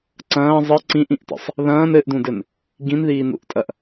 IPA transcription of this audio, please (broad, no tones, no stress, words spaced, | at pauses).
ǀɐ̃ː zˤɘ ǀĩʔĩʔtə̰sˤ | ðɐ̃ːn ɘʔdũdɘn | ɡĩnðiːnṵʔtʼɐʔ